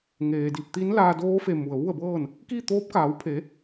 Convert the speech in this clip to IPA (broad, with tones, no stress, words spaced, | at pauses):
ŋeː˩di˧˩p̚t̪i˧˥nlaː˧ doː˧˥fe˧˩ mu˩ə̯ʋu˥˨ə̯bɤː˥˨n | ki˥˨t̪oː˧˥p̚kaː˩˧wpʰe˩˧